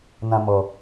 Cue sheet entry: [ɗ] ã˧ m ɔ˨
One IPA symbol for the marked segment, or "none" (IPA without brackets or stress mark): n